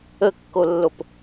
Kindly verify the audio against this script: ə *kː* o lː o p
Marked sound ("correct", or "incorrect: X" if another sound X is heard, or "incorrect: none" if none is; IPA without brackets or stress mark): correct